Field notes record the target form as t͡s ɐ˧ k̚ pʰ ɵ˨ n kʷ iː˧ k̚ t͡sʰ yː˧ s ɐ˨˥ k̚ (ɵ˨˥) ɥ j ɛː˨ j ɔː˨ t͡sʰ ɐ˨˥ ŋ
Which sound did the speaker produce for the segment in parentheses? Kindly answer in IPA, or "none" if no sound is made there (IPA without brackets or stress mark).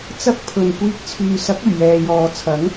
ɵ˨˩